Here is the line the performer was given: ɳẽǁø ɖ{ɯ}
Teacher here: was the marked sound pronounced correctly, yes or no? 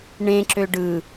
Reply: yes